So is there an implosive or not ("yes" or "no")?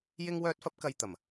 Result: no